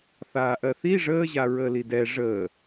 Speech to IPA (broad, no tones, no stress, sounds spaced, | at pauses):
θ aː ʔ ɜ θ i ʐ əː ʑ a ɹ əː l i d ɛ ʐ əː